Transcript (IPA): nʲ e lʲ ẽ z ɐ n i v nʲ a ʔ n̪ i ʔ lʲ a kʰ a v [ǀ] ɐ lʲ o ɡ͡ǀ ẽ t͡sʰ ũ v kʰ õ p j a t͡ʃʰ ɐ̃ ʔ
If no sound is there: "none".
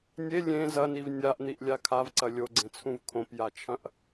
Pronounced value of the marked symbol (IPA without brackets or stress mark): ǀ